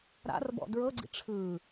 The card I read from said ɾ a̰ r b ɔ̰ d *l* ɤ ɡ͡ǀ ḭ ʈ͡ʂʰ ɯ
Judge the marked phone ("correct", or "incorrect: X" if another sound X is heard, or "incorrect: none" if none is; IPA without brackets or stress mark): incorrect: ɹ